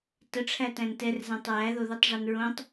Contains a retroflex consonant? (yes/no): yes